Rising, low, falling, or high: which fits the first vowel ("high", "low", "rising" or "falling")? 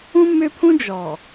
high